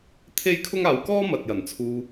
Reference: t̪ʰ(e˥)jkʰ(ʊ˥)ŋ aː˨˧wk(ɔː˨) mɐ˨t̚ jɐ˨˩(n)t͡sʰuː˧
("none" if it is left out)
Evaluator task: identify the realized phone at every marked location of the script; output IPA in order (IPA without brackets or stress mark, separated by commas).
e˥, ʊ˥, ɔː˥, n